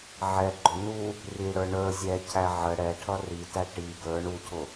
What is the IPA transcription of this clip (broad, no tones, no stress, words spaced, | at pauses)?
ʕɛɡ͡ǃʊ nu | riɽə˞ ɳə˞ zʲɛcʰæ ʕə ɽɛʈʰʌ ritæ ʈi ɡə˞ ɳucʰʊ